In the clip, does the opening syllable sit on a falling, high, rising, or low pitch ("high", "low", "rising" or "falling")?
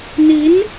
rising